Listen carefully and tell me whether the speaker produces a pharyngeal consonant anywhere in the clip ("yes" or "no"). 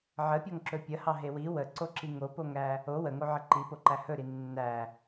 yes